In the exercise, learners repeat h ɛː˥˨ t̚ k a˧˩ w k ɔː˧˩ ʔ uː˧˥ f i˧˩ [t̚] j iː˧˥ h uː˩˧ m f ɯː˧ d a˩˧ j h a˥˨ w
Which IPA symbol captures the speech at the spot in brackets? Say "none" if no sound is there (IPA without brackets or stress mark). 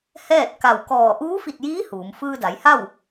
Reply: t̚